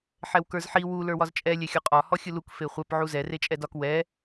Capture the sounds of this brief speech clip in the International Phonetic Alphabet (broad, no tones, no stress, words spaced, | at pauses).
ħɛwkə˞zħi wu lə˞wɒzt͡ʃʼɛ lʲɛxʲɔqʼɒ hɔxʲɯluk feχʷɛp ʕuzɛ ret͡ʃʼɛdɒk wɛ